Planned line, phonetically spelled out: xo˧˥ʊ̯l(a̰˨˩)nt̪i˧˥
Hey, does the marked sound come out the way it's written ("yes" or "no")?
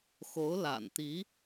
yes